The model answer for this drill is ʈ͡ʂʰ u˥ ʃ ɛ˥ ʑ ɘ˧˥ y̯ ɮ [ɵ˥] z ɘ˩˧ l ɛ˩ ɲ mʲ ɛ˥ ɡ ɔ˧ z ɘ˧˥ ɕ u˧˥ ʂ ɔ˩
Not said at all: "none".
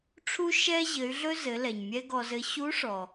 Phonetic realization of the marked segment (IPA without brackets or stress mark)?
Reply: ɵ˥